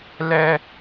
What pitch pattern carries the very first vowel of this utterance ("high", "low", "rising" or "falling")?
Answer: high